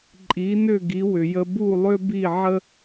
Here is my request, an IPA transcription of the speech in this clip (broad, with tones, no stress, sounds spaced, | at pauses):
ǃʼ i˩˥ n ʏ˥˩ ɡ i˩˥ w ʏ˩ j ə˧ b u˥˩ lˠ ʏ˥ b i˥˩ ʕ ə˥